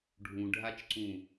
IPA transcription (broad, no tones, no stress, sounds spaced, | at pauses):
ɖʱ ũ ɖʱ a t͡ʃ ǀ ũ